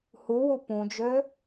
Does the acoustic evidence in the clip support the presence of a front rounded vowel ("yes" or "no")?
yes